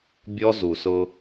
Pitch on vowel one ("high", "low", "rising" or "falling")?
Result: high